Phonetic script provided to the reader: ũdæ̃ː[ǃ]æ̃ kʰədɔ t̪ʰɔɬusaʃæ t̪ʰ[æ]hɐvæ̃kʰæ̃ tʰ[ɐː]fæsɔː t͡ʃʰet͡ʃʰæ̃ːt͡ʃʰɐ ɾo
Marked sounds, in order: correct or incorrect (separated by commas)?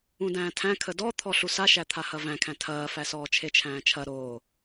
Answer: incorrect, incorrect, correct